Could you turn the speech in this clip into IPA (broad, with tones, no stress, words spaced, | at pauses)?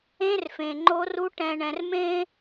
ẽ˦rfẽ˨ŋ͡ǃo˦ru˦ ʈɛ̃˨ɳɛ̃˨rmẽ˦